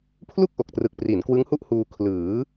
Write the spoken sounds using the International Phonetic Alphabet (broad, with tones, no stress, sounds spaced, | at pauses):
pʰ l u˥˩ k̚ ʔ o˨˩ k̚ t r ɯ˨˩ k̚ p r i˩˦ n k w ɯ˦˥ ŋ h u˥˩ ʔ h uː˧ kʰ l ɯː˩˦